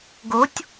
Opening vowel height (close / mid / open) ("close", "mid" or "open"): mid